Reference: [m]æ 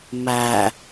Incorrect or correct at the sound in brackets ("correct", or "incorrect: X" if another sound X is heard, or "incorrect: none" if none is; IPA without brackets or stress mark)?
correct